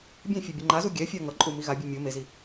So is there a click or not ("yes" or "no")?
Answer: yes